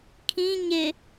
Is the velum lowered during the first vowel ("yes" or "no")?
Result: yes